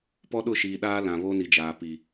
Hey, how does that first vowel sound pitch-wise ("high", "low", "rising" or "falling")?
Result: high